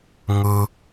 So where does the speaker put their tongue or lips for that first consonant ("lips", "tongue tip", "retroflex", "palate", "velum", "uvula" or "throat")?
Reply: velum